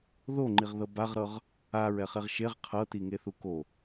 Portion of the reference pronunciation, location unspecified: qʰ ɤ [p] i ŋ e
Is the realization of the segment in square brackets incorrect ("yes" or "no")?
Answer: yes